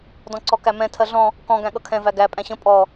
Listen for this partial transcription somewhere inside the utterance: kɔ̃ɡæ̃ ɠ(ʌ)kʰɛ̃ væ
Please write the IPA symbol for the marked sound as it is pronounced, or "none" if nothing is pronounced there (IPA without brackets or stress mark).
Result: ʌ